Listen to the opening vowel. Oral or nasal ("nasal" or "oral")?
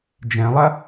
nasal